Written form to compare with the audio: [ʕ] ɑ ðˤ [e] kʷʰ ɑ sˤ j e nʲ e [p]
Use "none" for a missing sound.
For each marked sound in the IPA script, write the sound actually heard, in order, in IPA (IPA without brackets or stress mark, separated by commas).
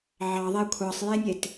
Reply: ʕ, e, t